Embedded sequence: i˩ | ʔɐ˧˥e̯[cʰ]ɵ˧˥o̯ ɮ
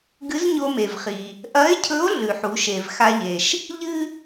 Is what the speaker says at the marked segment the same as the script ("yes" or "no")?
yes